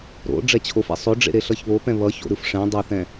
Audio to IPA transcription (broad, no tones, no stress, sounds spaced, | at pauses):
ɾ o̰ ɖ͡ʐ ɛ t͡ɕʰ o f ḛ sˤ o ɖ͡ʐ ḛ ɾ e ɬ ʌ ç β o p ɛ̃ β ʌ ç o̰ ɾ ɯ f ʂ ɛ̃ dˤ o θ ɛ̃